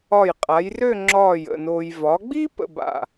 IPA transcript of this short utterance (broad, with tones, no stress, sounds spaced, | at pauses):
ɒ˧˩ j qʼ a˩˧ j r ø˥˧ ŋ͡ǁ ɒː˧˩ j ə̰˥˧ n oː˧ j v ɒ˩˧ ɡ͡b i˥ p ə̰˥˧ b a̰˧˩